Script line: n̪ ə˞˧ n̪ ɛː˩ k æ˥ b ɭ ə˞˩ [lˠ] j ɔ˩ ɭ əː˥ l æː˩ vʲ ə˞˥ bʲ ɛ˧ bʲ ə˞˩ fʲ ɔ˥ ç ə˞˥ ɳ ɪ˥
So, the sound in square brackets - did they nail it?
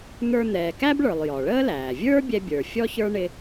yes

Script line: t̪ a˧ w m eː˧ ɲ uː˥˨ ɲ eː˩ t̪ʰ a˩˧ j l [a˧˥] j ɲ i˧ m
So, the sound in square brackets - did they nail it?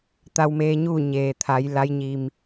yes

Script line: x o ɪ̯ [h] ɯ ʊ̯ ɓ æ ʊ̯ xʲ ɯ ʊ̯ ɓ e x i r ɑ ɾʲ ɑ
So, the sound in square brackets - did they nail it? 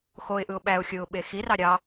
no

